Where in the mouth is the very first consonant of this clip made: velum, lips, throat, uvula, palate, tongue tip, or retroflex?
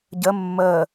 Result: palate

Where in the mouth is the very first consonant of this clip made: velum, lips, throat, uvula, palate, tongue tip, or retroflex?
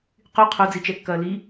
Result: uvula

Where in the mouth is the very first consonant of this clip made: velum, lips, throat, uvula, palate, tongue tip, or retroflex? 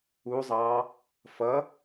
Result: tongue tip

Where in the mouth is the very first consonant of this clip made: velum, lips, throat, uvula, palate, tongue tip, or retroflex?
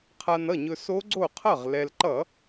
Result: uvula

